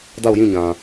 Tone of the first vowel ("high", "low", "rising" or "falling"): falling